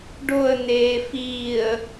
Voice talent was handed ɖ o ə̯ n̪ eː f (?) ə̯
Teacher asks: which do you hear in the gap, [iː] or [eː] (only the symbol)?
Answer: iː